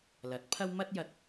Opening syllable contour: rising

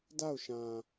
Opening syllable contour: falling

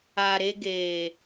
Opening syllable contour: low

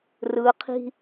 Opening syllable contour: low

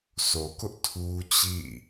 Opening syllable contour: low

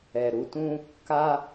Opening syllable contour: low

